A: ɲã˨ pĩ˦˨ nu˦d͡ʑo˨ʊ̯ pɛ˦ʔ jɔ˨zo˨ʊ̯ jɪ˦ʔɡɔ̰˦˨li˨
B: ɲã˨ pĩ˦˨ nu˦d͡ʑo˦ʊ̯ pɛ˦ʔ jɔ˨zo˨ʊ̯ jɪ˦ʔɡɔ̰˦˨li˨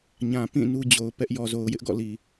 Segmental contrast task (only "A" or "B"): A